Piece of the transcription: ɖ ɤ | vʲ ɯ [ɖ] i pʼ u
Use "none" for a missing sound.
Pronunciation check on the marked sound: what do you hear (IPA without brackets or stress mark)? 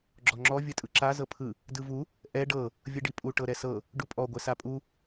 ɖ